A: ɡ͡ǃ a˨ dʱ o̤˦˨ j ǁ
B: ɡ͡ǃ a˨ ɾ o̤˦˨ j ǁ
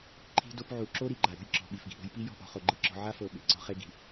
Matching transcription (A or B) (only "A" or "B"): B